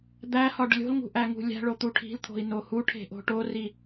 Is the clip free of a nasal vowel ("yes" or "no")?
yes